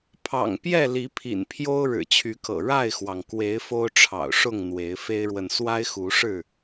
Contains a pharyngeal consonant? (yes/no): no